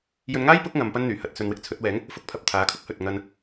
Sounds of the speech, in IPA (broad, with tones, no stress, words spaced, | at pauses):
jɵ˧nŋaː˥jpʊ˨˥k̚ ŋɐ˨˧mpɐ˥nn̪yː˨˩ hɐ˨t̚sɵ˨nwɪ˧k̚ t͡sʰɵ˨˥t̚wɛː˨˥ŋ | fʊ˨˥k̚pʰɐ˨p̚ t̪ʰaː˨˥kʰʊ˥k̚hɵ˨t̚ ŋɐ˧n